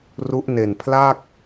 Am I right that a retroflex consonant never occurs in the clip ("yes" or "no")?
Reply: yes